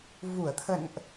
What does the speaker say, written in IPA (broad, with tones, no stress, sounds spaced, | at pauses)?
v u˧˩ ə̯ t̪ʰ ə̰˧˨ n ʔ